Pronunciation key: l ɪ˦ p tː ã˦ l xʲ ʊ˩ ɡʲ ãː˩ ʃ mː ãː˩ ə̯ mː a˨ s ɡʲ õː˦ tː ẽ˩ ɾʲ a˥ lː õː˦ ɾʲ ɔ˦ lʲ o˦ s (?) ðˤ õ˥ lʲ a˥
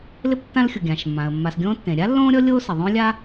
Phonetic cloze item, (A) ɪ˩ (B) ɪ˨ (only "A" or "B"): A